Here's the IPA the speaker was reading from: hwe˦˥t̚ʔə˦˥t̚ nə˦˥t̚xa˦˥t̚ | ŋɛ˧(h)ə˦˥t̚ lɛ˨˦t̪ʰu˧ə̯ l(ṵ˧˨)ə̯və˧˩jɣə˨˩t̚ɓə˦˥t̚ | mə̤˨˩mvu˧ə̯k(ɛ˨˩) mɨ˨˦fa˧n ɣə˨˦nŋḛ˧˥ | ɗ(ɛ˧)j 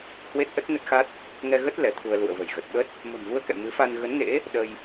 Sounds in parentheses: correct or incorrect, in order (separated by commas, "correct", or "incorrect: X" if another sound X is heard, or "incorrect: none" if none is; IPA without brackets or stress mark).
incorrect: ɣ, correct, incorrect: ɛ̰˧˨, incorrect: ə˧